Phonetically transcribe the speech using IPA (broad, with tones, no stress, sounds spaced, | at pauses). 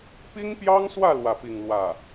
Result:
p i˥ ŋ p j ɑ˥ ŋ s w ä˥˧ l w ä˥˧ p i˥˧ ŋ l w ä˥˩